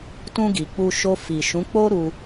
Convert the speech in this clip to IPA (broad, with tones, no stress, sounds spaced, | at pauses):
t ũ˧ ɡ i˨ k͡p u˧ ʃ o˧ f i˨ ʃ ũ˨˦ k͡p o˦ ɾ u˧